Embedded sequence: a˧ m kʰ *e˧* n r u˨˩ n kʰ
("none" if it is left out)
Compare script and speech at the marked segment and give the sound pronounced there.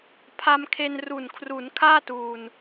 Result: e˧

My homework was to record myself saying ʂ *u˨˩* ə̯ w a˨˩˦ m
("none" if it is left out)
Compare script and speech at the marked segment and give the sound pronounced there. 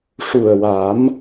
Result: u˨˩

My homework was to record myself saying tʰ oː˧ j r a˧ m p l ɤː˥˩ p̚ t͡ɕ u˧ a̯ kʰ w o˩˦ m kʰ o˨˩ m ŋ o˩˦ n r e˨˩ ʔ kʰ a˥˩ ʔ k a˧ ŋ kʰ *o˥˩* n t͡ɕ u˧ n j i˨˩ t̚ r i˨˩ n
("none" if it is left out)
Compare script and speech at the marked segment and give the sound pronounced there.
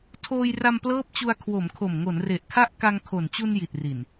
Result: o˨˩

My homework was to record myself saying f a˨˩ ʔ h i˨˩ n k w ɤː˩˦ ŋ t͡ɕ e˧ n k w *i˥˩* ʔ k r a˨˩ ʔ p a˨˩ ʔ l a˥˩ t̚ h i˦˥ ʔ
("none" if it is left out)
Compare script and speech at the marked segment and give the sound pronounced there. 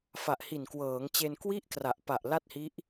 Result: i˥˩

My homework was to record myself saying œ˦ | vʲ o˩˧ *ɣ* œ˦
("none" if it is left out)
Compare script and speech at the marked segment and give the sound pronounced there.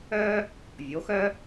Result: x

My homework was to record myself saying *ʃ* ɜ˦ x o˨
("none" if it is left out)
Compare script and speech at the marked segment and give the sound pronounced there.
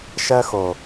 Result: ʃ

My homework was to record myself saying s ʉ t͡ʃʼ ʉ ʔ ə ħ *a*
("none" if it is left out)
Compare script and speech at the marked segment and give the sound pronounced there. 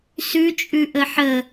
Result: ə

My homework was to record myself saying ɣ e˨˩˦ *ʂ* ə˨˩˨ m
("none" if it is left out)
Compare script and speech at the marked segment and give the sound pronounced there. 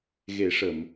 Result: ʂ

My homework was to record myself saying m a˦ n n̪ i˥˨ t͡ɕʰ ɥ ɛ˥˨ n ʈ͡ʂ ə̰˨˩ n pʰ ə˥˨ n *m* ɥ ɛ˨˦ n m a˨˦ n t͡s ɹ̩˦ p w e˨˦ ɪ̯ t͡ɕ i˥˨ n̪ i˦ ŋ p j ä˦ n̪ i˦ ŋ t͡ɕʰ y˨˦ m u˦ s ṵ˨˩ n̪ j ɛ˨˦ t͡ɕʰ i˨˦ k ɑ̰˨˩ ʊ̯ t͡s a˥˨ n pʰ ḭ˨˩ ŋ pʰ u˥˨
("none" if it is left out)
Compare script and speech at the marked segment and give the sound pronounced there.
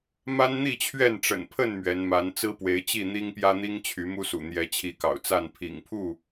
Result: m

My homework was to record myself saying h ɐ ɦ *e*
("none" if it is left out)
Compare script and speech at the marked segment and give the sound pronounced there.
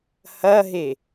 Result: e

